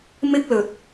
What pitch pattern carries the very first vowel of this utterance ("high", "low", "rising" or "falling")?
high